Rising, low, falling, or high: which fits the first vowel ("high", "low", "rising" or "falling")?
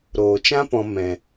low